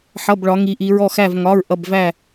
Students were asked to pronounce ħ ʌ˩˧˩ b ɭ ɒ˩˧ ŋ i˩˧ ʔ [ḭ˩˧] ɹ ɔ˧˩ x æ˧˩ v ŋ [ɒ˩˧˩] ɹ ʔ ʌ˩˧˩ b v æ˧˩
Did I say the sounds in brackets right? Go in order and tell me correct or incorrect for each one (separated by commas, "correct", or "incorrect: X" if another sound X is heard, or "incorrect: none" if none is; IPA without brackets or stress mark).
incorrect: i˩˧, correct